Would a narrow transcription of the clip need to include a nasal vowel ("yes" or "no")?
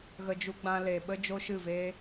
yes